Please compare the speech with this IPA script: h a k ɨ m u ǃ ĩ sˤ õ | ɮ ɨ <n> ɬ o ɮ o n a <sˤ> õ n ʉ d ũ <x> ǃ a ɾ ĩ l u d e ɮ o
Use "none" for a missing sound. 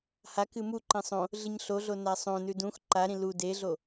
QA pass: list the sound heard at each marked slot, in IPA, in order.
ɲ, sˤ, x

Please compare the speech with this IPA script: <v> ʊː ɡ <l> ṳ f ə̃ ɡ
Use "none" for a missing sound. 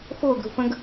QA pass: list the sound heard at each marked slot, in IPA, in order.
f, ɾ

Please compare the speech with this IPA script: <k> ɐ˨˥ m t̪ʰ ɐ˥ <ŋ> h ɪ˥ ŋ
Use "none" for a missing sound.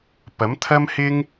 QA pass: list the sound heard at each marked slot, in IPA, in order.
p, m

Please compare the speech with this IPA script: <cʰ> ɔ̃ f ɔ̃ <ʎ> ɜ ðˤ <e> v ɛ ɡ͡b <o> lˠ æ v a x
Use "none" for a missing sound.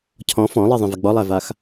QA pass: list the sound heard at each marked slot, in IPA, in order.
cʰ, lˠ, ẽ, ɔ

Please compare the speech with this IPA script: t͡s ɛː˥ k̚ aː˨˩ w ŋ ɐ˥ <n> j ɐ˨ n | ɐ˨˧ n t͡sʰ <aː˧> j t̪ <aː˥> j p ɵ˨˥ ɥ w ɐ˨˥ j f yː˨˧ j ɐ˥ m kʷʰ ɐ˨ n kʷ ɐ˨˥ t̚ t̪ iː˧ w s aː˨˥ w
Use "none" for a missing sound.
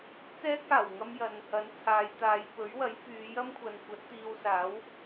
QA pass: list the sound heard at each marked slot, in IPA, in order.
m, aː˨˧, aː˨˧

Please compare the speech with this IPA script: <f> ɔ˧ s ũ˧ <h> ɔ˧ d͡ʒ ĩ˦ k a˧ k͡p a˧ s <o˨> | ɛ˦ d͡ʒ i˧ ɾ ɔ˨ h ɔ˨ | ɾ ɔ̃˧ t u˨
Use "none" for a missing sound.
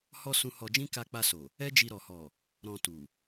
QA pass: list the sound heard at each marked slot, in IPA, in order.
h, h, o˨

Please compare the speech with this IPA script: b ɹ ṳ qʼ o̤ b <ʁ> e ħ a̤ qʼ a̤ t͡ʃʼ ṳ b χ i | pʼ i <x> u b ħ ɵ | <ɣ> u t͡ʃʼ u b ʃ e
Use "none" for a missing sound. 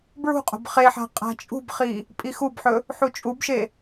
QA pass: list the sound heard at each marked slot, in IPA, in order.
χ, x, ħ

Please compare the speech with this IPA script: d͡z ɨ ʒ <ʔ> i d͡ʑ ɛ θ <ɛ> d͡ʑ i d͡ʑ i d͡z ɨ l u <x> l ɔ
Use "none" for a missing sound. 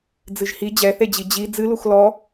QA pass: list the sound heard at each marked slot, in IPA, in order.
h, e, x

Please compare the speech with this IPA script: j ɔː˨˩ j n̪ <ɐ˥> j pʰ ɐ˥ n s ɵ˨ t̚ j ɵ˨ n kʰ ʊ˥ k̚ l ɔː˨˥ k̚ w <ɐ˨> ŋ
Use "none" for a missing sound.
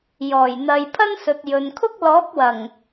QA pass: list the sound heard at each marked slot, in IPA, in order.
ɐ˨, ɐ˨˩

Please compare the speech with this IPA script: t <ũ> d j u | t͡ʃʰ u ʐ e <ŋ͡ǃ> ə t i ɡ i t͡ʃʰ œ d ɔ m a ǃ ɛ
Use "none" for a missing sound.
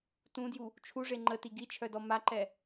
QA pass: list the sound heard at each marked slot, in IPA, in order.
ũ, ŋ͡ǃ

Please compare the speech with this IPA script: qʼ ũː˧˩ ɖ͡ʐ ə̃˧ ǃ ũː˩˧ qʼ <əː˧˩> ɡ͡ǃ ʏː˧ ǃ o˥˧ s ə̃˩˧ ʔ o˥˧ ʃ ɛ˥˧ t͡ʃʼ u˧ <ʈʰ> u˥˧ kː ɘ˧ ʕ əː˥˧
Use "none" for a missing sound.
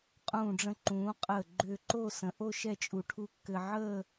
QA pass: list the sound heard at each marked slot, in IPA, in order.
əː˧˩, ʈʰ

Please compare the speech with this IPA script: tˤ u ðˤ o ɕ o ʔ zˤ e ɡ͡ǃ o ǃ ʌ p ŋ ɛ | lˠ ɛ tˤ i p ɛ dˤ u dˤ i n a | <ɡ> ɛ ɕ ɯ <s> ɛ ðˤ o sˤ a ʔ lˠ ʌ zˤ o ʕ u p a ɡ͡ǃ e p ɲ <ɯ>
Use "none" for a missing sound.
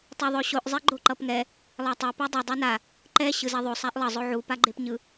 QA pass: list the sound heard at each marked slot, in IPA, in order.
ǃ, z, ɯ

